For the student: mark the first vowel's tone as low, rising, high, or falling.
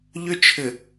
high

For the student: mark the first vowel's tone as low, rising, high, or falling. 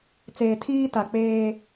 low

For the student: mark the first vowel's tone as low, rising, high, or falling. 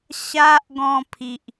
high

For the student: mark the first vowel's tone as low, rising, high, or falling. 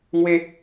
high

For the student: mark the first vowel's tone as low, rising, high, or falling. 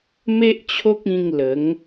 high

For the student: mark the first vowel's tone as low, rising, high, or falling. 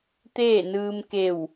falling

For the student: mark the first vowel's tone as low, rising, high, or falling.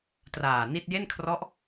low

